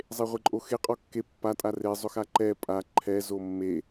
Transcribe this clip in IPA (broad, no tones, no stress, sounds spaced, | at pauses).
zˤ e ʁʷ e ǃʼ o x e qʼ ɔ kː e pː a tʼ a r e zˤ ʊ x a ǃ ɛ pʼ a ǃʰ ɛ z o mː e